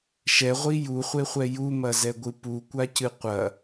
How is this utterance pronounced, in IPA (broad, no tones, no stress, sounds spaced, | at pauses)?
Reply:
ʃ ɛ ʁʷ i j u χʷ e χʷ ɛ j u m ɐ z ɛ ɡʷ ɨ p u kʷ a c ɨ qʷ ɐ